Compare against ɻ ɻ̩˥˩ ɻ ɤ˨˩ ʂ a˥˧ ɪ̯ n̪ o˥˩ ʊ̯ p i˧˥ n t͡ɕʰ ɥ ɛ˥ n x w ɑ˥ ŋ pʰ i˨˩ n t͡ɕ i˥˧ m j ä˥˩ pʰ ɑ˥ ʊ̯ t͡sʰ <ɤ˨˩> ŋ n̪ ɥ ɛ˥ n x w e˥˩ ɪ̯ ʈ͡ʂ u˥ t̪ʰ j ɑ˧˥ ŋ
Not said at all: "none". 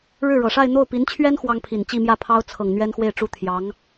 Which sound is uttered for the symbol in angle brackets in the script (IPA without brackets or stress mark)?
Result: ɤ˨˩